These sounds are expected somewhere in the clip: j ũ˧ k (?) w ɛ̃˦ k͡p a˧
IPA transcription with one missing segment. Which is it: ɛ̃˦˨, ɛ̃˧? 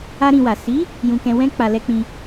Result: ɛ̃˧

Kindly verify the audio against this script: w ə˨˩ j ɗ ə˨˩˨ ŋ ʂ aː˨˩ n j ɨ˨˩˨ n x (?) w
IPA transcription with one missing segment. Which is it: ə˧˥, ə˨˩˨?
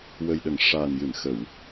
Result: ə˨˩˨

